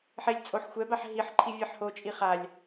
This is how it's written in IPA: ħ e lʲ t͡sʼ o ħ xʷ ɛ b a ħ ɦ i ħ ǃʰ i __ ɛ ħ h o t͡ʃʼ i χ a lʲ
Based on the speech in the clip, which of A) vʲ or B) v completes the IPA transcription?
A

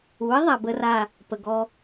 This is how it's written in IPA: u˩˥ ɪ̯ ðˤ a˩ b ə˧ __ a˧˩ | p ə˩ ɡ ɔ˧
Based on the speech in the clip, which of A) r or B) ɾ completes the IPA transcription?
A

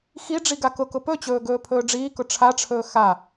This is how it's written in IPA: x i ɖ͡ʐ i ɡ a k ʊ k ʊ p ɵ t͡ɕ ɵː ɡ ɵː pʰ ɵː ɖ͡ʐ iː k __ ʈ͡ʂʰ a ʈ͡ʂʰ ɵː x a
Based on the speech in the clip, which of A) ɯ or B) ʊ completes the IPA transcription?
B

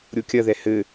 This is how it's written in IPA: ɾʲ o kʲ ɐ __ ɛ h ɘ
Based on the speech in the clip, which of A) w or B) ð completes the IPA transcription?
B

